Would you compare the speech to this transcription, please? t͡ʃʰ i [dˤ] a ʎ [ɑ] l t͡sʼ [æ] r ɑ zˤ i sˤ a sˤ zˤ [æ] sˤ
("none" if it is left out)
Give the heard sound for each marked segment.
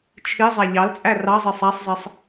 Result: zˤ, ɑ, æ, ɛ

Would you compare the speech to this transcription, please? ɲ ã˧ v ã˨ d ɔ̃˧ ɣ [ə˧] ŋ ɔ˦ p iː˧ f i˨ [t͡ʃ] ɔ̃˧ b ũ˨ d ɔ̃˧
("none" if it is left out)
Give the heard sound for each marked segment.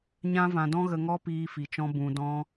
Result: ə˨, t͡ʃ

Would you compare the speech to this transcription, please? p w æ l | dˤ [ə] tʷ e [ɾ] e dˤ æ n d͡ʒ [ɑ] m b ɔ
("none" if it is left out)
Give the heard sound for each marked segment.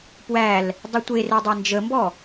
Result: ə, r, ə

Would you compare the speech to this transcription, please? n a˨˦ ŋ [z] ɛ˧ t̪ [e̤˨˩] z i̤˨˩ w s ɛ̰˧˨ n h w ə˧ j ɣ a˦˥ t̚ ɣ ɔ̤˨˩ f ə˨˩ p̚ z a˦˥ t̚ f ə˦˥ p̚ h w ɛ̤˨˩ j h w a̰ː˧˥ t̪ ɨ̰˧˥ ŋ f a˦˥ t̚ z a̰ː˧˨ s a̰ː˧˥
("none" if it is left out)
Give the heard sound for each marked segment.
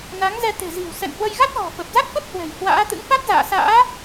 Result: z, e̤˨˩

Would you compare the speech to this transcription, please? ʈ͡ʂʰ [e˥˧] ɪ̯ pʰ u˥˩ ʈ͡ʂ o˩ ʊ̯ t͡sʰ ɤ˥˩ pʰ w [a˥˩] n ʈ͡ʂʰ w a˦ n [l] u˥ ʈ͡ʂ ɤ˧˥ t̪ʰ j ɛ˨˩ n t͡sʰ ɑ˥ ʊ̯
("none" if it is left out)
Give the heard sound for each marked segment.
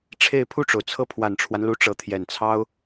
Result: e˥˧, a˨˩, l

